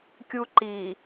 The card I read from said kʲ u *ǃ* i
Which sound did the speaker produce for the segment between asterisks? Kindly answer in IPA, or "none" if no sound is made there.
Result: ǃ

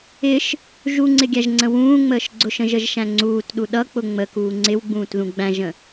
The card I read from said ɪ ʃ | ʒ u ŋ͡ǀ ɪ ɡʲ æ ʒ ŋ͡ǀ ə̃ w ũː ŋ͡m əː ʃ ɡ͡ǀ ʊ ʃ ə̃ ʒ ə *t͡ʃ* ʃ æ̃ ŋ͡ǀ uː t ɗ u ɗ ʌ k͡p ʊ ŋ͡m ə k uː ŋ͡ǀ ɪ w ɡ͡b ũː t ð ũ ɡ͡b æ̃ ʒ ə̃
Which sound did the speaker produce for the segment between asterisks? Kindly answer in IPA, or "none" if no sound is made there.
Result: ʒ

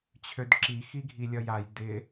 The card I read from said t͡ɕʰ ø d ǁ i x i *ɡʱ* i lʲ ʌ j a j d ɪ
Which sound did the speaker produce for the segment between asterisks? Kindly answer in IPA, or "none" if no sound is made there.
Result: ɡʱ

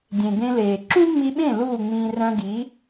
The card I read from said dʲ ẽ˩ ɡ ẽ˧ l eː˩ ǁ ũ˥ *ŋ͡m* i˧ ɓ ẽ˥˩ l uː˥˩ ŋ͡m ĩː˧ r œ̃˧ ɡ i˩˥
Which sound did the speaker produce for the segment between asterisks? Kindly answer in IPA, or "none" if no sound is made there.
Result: ŋ͡m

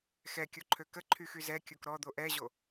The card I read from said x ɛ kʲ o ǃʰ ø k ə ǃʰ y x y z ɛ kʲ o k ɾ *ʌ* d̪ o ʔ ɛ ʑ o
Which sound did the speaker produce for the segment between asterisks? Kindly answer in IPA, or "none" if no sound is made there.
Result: ɔ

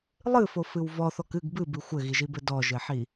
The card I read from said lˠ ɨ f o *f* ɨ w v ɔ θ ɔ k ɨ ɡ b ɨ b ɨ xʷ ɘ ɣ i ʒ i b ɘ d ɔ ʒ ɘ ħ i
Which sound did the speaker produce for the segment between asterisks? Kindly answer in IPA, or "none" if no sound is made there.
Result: f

